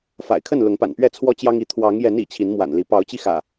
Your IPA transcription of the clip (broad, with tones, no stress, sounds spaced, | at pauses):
f a̰˨˩ ɪ̯ kʰ ə˥˨ n l ʊ˨˦ ŋ p a̰˨˩ n p ɥ ɛ˥˨ t͡sʰ w ɔ˦ t͡ɕ j ɑ˦ ŋ i˨˦ t̪ʰ w ɑ˨˦ ŋ j ɛ˨˦ n ḭ˨˩ t͡ɕʰ i˨˦ n m w a̰˨˩ n l i˨˦ p ɑ˨˦ ʊ̯ t͡ɕ i˧ x ä̰˨˩